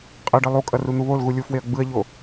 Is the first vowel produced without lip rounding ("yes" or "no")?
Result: yes